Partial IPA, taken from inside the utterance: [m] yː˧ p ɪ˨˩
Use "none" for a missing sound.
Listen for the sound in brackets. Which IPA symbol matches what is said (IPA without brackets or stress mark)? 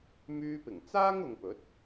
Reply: m